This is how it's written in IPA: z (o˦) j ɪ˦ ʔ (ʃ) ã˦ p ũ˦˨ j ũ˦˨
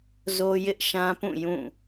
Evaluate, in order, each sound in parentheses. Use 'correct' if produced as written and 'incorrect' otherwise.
correct, correct

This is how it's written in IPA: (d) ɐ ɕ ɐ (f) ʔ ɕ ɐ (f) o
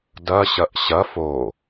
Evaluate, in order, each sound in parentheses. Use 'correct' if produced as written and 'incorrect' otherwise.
correct, incorrect: none, correct

